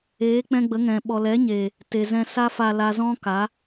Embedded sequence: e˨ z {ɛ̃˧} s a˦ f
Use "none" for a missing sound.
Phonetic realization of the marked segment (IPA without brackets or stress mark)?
ɛ̃˧